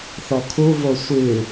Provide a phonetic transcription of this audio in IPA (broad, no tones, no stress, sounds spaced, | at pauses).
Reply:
θ ɔ kʰ u v o sʷ ɨ